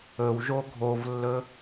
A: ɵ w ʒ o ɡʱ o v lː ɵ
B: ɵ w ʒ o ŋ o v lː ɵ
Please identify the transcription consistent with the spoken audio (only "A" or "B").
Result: A